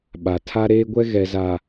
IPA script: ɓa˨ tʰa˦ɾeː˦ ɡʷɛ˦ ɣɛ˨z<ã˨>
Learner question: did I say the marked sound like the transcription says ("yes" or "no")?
no